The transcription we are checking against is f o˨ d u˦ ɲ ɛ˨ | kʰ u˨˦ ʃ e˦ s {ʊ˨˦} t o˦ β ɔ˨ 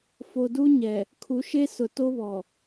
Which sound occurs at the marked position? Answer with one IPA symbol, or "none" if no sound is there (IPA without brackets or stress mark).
ʊ˨